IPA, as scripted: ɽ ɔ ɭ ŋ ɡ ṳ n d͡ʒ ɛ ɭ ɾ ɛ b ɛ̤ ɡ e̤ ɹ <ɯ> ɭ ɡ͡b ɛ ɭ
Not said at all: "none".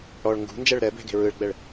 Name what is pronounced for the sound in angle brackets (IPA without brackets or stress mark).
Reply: ɯ